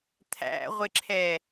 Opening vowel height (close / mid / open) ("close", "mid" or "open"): open